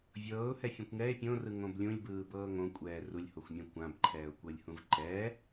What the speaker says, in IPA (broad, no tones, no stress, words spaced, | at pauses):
vʲɤːʊ̯hɛfʲõkʷ ŋɛɪ̯ pʲõrɯŋõb lʲũlʲbɯːbɤː ŋõkʷʼɛː rulʲhoxʷmʲɛ̃ kʷãbǃʰɛːʊ̯kʷɤlʲhũv ǃɛ